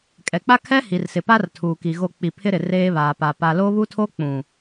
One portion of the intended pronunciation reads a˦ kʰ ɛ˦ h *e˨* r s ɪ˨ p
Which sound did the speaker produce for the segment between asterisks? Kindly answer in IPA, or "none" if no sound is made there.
i˨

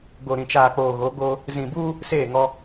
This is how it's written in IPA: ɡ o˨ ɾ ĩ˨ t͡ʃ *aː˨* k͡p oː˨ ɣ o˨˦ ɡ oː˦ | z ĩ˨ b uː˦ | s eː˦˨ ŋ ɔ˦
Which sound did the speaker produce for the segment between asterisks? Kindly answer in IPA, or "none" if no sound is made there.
aː˨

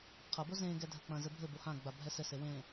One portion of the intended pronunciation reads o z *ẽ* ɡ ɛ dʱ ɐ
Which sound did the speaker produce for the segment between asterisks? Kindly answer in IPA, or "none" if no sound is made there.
ẽ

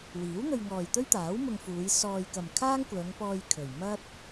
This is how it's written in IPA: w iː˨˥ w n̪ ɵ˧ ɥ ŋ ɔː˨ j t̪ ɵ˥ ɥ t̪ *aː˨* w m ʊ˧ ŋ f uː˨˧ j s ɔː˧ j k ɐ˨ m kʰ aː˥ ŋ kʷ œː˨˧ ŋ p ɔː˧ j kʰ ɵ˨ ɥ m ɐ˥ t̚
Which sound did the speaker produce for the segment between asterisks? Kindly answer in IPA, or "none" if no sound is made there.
aː˨˥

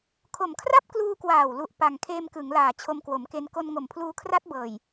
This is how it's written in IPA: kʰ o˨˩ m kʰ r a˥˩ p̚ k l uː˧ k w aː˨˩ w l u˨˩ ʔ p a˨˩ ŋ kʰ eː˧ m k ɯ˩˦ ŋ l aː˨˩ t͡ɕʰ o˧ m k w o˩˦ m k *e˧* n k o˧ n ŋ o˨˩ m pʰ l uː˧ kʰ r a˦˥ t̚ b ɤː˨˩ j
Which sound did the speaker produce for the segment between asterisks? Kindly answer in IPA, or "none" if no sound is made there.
e˧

